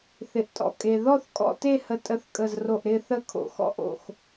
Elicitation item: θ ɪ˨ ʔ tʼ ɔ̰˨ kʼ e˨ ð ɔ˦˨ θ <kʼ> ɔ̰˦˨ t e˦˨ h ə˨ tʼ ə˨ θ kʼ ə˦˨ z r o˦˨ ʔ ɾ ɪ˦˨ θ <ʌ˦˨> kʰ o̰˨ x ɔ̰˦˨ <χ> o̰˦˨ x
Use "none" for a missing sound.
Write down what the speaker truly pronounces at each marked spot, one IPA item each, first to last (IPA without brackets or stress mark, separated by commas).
kʼ, ə˦˨, ʔ